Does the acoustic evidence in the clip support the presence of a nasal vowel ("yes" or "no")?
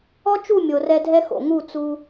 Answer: no